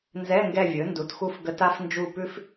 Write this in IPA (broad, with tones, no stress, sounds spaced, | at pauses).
n z ɛ˧˥˧ ŋ ɡ ɛ˦˨ vʲ ɵ˩˥ n d u˩˥ t x u˦˨ f ɡ ə˧˥ t a˧˥ f n d͡ʒ u˦˨ p ʉ˥ f